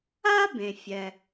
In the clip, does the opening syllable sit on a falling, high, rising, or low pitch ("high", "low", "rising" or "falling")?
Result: high